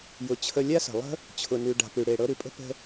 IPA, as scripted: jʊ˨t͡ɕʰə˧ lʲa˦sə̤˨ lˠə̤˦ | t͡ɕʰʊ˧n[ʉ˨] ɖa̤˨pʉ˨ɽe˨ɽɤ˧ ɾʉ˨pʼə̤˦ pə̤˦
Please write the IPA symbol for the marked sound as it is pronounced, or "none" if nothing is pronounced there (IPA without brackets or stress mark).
ʉ˧